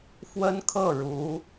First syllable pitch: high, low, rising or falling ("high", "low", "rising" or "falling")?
high